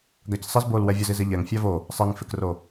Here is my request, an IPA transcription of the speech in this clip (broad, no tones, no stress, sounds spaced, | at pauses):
ɡ a c sˤ ɪ z b o l w ɛ vʲ ʊ z i z ɪ ʎ ɛ ŋ fʲ a v o | sˤ ɛ ŋ f ɪ k r o